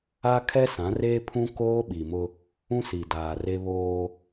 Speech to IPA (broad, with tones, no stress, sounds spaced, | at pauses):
a˦ kʰ ɛ˦ s ã˨˦ r eː˦ pʰ ũ˦ k oː˦ ɓ i˨ m ʊ˦ | ũ˦ s i˨ d aː˨ r e˦ β oː˦